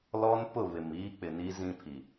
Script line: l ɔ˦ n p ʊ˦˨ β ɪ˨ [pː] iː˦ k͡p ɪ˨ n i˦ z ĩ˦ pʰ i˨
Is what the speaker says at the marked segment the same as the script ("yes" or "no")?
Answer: no